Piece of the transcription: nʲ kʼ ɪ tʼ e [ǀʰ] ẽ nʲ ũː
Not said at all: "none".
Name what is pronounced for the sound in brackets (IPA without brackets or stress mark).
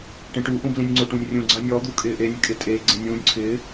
ɡ͡ǀ